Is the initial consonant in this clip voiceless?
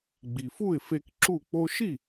no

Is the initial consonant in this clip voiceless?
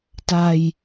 yes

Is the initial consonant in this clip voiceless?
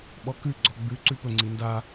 no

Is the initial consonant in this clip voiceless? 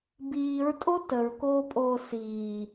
no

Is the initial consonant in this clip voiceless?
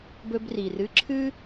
no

